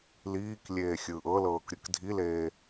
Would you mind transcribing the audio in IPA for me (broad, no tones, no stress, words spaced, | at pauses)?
liːklʲeː xʲɯːʔɤlɤːk ɾʲɯkdʱileː